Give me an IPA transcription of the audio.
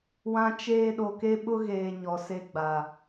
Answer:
w ã˦ t͡ʃ eː˦ ɗ o˨ k e˦ ɓ ʊ˦ ɣ eː˨ ɲ ɔ˨ s e˦ ɡ͡b a˨

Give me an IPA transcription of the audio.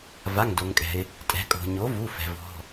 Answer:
v a˩˧˩ ŋ d o˩ ŋ kʼ ɛ̤˩ ɪ̯ | tʼ ɛ̤˩˧ kʼ o̤˩ ɲ o˩˥ v u˩˧˩ f ɛ̤˩ v ɔ̤˩˧˩

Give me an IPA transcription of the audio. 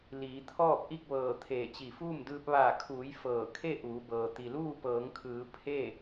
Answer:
l iː˩˧ t̪ʰ ɔː˥˨ p̚ ʔ i˥˨ k̚ ʋ ɤː˧˩ t̪ʰ eː˧˩ t͡ɕ i˧˩ f uː˥˨ m d ɯː˧ p̚ ʋ aː˧˩ kʰ uː˩˧ j f ɤː˧˩ kʰ e˥˨ ʔ uː˩˧ b ɤː˩ t̪ i˩ l uː˥˨ p ɤː˩˧ ŋ kʰ ɯː˩˧ pʰ e˥˨

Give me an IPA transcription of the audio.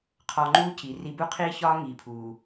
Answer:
qʰ ɒ˧ ŋ͡ǃ uː˦ c i˨ r i˧ b u˦ qʰ iː˦ ç ɒː˦ ŋ iː˨ pʰ uː˨

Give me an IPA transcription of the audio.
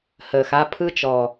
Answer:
h əː˨ x a˦ pʰ ɯ˦ t͡ʃ ɔ˨

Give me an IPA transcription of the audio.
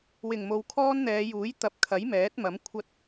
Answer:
w ɪ˨˩ ŋ m o˨ w kʰ ɔː˥ n n̪ ɛː˨˧ j uː˨˥ j t̪ ɐ˨˥ p̚ kʰ ɐ˨˥ j m ɛː˨˥ t̚ m ɐ˨˥ m kʷʰ ɐ˧ t̚

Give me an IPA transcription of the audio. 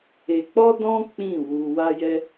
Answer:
e˧ k͡p ɔ˦ d ɔ̃˦ k͡p ĩ˦˨ w u˧ w a˦ j ɛ˦

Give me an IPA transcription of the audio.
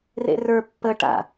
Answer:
r ḛ r ə˞ pː ə ʈ a̰

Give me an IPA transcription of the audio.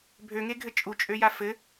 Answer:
bʱ ø ŋ e ɡʱ ɘ t͡ʃʼ u t͡ʃʼ ø j a f ɘ

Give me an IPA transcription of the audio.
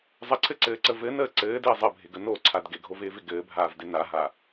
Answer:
zˤ ə ǀʰ ɘ ǀ ɘː ǀ ə v ɘ n əː ǀ ɘː d ɪː zˤ ɘ bʱ ɪ ɡ ə n o ǀʰ a d ɡ ɪ ɡʱ o v ɪː v ɪ ɡ ɘː bʱ aː v d ɪ n a ɦ a

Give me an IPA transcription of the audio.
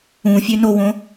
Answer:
ũ fʲ ø n o w õ

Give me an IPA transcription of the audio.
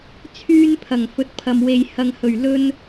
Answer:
t͡sʰ yː˥ n pʰ ɐ˨˩ ŋ f ɵ˨˥ t̚ pʰ ɐ˨ m w e˨ j h ɐ˨ ŋ h ɵ˨˩ ɥ l ɵ˧ n

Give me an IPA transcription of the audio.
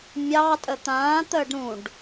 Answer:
mʲ ɑ tʼ ə t̪ ãː t̪ əː ɖ ɾ ũ ɖ

